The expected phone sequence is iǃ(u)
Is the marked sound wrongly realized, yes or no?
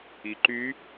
yes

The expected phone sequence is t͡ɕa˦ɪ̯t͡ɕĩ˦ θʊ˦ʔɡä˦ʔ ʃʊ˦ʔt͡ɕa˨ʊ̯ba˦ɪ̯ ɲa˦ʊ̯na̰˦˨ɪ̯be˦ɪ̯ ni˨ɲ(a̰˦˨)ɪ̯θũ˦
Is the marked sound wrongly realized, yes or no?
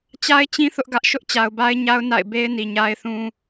yes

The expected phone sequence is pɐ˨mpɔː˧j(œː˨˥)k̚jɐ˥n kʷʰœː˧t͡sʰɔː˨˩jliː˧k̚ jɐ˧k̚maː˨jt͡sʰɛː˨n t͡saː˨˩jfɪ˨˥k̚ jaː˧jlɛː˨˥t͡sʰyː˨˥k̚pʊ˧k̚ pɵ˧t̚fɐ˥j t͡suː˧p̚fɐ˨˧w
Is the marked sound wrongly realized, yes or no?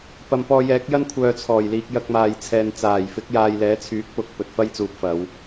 yes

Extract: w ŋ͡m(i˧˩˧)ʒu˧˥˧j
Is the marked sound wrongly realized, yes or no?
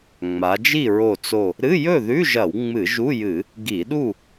yes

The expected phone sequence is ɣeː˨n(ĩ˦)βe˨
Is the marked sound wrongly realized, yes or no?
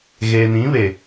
yes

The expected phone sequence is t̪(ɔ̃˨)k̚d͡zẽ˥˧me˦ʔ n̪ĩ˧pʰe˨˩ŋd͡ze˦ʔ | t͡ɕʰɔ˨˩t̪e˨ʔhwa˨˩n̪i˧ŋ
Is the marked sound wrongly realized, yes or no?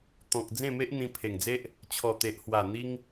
no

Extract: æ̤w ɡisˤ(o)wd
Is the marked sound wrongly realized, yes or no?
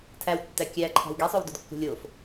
no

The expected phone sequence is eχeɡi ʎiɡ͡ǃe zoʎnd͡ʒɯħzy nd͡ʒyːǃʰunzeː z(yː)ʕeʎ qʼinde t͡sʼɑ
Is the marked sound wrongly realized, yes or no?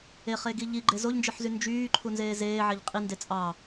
yes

